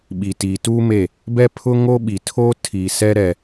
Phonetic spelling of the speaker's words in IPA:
ɓ i˨ t iː˨ t uː˦ m e˦˨ | b ɛ˦ pʰ ʊ˦ ŋ o˦ ɓ i˨ tʰ o˦ tʰ i˨ s ɛ˦ ɾ ɛ˨

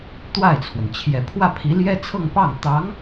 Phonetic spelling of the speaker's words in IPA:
t̪ w a˥˩ ɪ̯ t͡sʰ w ə˩ n t͡ɕʰ j ɛ˨˩ pʰ w ä˥˩ pʰ i˧˥ l j ɛ˥ t͡sʰ ɤ˥˧ ŋ p ɑ˥˩ ŋ t̪ ɑ˧˥ ŋ

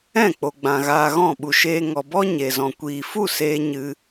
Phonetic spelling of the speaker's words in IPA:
ɛ̃˦˨ k͡p o˨ ɡ͡b ã˨ ɣ aː˧ ɣ ɔ̃˦˨ ɓ u˨ ʃ eː˧ ŋ ɔ˨ b ɔ˦ ɲ e˨ z ɔ̃˨ kʷ iː˨ f u˦˨ s eː˦ ɲ ɨ˦

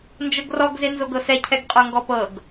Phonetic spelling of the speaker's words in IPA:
n d͡ʒ ɤ ɡ r ɔ ɡ z e n z o ɡ ɤ s ɛ cʰ ɛ ɡ qʼ o ŋ ɡ ɔ p ɤ ɡ

